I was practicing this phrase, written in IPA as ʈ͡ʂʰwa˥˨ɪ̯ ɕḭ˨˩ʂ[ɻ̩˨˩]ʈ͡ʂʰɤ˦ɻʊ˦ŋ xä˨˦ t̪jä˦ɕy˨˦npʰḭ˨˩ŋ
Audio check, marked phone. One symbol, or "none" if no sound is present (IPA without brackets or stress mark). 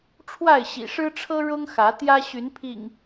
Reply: ɻ̩˦